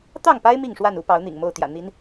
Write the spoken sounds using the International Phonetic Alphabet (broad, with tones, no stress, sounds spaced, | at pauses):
t̪ ɑ˥˨ ŋ p a˦ ɪ̯ m i˥˨ ŋ ʂ w a˥˨ n u˦ p ɑ˨˦ ʊ̯ n̪ ḭ˨˩ ŋ m o˥˨ ʊ̯ t̪ j ä̰˨˩ n̪ i˨˦ n